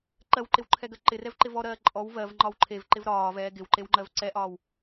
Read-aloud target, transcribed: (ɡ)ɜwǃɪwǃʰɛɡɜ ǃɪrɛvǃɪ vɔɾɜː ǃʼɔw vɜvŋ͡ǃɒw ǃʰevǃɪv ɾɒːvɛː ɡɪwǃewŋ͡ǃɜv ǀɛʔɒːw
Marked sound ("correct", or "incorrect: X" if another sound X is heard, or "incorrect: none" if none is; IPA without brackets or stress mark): incorrect: ǃ